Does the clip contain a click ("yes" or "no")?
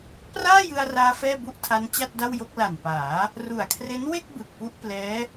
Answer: no